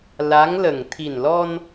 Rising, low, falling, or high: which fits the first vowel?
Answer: rising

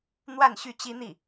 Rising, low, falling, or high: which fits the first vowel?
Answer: falling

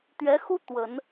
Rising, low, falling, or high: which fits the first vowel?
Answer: rising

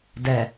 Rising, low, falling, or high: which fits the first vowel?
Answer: low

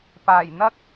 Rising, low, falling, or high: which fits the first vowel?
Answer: low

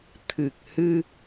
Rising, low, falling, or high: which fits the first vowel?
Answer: low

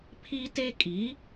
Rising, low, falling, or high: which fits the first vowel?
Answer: high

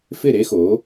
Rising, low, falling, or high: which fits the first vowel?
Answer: falling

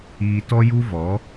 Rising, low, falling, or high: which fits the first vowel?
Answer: low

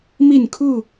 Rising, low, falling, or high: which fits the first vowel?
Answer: falling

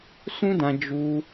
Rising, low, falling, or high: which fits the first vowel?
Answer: high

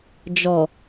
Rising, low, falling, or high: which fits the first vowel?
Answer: low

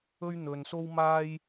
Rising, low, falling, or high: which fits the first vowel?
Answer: high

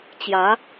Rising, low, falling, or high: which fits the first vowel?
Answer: rising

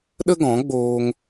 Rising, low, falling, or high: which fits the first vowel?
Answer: high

